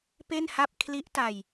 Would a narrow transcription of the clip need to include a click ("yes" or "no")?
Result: no